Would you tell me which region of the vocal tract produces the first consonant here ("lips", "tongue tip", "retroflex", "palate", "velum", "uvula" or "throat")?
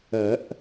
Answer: throat